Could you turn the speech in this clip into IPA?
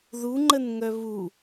ð u ŋ͡ǃ ə n ŋ œ β u

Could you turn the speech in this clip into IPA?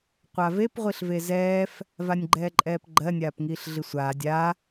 qʷ a v e p ʁʷ i ɬ v e z ɛː f | v a nʲ ɡ͡ǃ ɛː ǃʼ ɛː p ɡ͡ǃ ɜ nʲ aː p ŋ iː ɬ ɮ i sʷ aː dʲ a

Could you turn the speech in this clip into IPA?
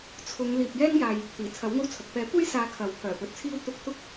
t͡sʰ ʊ˨˧ ŋ l iː˨ p̚ j ɛː˥ ŋ j aː˨ j | t̪ iː˨˩ t͡sʰ ɐ˨˥ w ŋ o˥ w t͡sʰ ɐ˨ k̚ p ɛː˨˥ kʷ e˥ j s aː˨˧ kʰ ɐ˨˥ w pʰ œː˨˩ p ɵ˨˥ t̚ t͡sʰ iː˥ w t̪ ʊ˧ k̚ t̪ ʊ˥ k̚

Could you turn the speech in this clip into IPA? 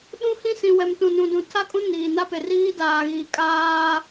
ɗ ũ˦ h ĩ˦ s ĩ˨ w ɛ˨ m t ũ˨ n ũ˨ d ũ˨ tʰ a˦ kʼ ũ˦ n iː˨ n a˦ p e˨ r iː˦ d aː˨ ɣ iː˨ kʼ aː˦

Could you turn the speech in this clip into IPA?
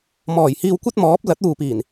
m ɔː˨˩ j h iː˧ w kʷ ɐ˥ t̚ m ɔː˨˥ p̚ l ɐ˨˥ t̚ uː˨ p iː˨˩ n

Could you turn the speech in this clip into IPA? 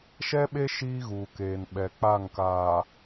ʃ ɛ˦ ɓ e˦ ʃ iː˦ ɣ uː˨ k eː˨ n ɓ ɛ˨ k͡p a˦˨ ŋ k aː˨

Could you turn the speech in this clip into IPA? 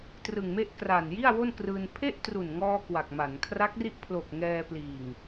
t r ɯ˨˩ ŋ m e˥˩ ʔ k r a˨˩ n j i˥˩ a̯ w o˥˩ n k r ɯː˧ n pʰ e˥˩ ʔ t r u˨˩ n ŋ ɔː˧ k w a˨˩ k̚ m a˩˦ n kʰ r a˦˥ k̚ r i˦˥ ʔ pʰ l o˨˩ k̚ ŋ ɛː˧ p l iː˨˩ ŋ

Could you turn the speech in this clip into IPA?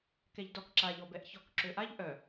k ɛ ʎ d ɔ k ǁ a ʎ ɔ b ɛ ʔ ç ɔ k ǁ ø ʔ a ʎ ʔ œ

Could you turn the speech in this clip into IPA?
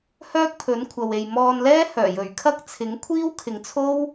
h œː˥ k̚ pʰ ɵ˨˥ n kʷʰ ɐ˨ w e˨ j m ɔː˧ n l ɛː˥ h œː˨˩ j ɵ˨˩ ɥ kʰ ɐ˥ k̚ t͡sʰ ɪ˨˥ ŋ kʷʰ iː˥ w kʰ ɪ˨˧ ŋ t͡sʰ o˥ w

